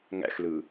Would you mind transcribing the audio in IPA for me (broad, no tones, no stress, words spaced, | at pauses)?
ŋæ̰xlɯ